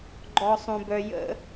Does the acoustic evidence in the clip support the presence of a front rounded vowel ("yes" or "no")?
yes